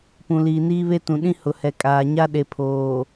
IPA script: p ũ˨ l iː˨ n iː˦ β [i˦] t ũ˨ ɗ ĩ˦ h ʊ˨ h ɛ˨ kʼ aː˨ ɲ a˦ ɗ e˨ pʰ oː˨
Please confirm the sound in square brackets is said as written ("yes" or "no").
no